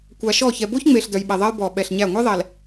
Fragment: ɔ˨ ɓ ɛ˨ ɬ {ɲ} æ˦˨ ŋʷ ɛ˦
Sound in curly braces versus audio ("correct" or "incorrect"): correct